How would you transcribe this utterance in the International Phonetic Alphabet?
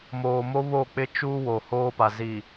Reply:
moː˨mo˦ βo˦˨k͡pɪ˦t͡ʃu˦ wo˨hoː˦pa˨ zi˨

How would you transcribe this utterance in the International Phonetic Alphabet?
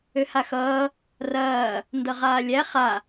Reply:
øhaxʌː | rɐː | ndʌʁaːlʲæ χa

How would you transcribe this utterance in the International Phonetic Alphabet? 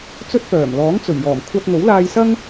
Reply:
t͡sɵ˥t̚pœː˨˩m lɔː˨˥ŋt͡sɵ˨˩ɥjɔː˨˩m kʷʰɐ˧t̚ŋo˨˥wlaː˧jsɐ˥ŋ

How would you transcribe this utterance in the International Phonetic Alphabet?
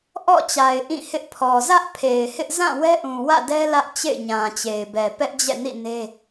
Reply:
ʔɔ̰˦˨t͡ɕa˨ɪ̯ ʔĩ˦˨hɪ˦ʔ pʰɔ˨ zä˦ʔpʰe˨ɪ̯hɪ˦ʔ zã˦˨ wɛ˦ʔũ˨wä̰˦˨dɛ˦ lä˦ʔt͡ɕḛ˦˨ɪ̯ɲã˨t͡ɕe˨ɪ̯ bɛ˨pɛ˦ʔd͡ʑɛ̰˦˨nḭ˦˨ ne˦

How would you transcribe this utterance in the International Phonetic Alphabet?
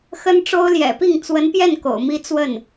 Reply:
xə˥nʈ͡ʂo˥ʊ̯ ljɛ̰˨˩pi˥˩ŋ t͡swə˧˥npjɛ˥˩n ko̰˨˩ʊ̯mi˥ t͡swə˥˩n

